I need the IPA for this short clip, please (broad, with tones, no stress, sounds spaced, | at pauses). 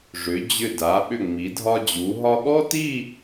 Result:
ʐ ʏ˩˧ d͡ʑ ʏ˧˩ d a˩˧ ɓ ʏ˧˩ ŋ͡m i˩˧ dʱ ɒ˧ d͡ʑ u˩˧ ɦ ɒ˧ ɠ ɔ˥ t i˥˧